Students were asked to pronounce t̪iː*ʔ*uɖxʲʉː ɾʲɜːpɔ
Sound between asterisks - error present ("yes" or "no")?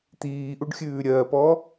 no